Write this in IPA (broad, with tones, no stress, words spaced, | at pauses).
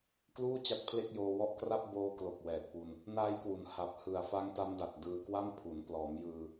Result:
kluː˥˩ t͡ɕa˦˥t̚pʰle˥˩k̚joː˧ wɔ˦˥ʔkra˥˩p̚ boː˦˥klo˨˩k̚wɛː˨˩t̚pu˧n | naː˦˥jkwu˩˦n ha˨˩p̚ hɯ˨˩a̯ fa˦˥ŋta˦˥mda˨˩t̚ dɯː˧kwa˥˩m pʰu˩˦n plɔː˩˦mjɯː˧